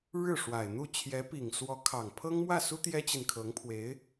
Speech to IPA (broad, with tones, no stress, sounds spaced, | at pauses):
ɻ ɻ̩˥˩ ʂ w a˨˩ ɪ̯ n̪ u˥˩ t͡ɕʰ j ɛ˧˥ p i˨˩ ŋ s w ɔ˧˥ kʰ ɑ˨˩ ŋ pʰ ɤ˥ ŋ m w ä˥˩ s u˥ t̪ j ɛ˥ t͡ɕ i˨ n kʰ ɤ˧˥ ŋ pʰ w e˧˥ ɪ̯